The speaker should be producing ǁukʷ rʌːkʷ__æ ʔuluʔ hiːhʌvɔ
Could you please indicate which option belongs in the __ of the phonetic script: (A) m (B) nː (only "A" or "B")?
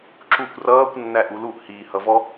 B